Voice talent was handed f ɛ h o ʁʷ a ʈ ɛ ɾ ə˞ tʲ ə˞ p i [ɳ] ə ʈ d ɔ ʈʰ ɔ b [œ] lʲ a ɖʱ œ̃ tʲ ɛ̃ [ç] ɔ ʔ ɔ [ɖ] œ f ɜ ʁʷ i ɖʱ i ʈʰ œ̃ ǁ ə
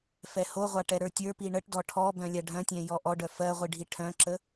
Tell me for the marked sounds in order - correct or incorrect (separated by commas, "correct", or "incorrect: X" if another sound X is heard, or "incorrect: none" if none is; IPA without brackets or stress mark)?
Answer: correct, incorrect: œ̃, incorrect: j, correct